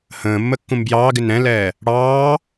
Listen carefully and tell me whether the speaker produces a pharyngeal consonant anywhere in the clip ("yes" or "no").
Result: no